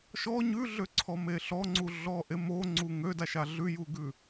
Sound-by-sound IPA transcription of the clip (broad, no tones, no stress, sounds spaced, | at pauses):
ʃ ɔ ɲ ʉ ɮ ø ǀʰ ɔ m e ɬ ɔ ŋ͡ǀ u ɮ ɔ ʔ e m o ŋ͡ǀ u ŋ ø d a ʃ a ɮ ʉ j u ɡ ʉ